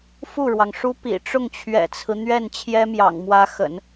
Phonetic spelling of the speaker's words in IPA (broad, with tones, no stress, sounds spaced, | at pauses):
f u˥˩ ɻ w ɑ˩ ŋ ʂ u˥ p ḭ˨˩ ʈ͡ʂ ʊ˥˩ ŋ t͡ɕʰ ɥ ɛ̰˨˩ t͡sʰ ɹ̩˦ n̪ ɥ ɛ˥˩ n t͡ɕʰ j ɛ˥ m j ɑ̰˨˩ ŋ m w ä˧˥ x ə̰˨˩˦ n